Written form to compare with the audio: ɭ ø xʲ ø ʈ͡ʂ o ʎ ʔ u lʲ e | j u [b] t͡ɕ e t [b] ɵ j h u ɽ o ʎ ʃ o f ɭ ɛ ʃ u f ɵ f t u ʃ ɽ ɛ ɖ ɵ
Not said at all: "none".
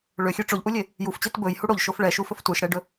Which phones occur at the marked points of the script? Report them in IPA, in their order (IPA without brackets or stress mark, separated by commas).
f, b